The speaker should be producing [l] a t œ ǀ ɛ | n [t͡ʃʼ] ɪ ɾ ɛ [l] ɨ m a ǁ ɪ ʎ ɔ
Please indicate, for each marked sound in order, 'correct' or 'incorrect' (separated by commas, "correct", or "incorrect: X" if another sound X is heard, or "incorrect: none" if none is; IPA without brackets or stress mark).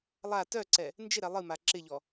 incorrect: lˠ, incorrect: d͡ʒ, incorrect: lˠ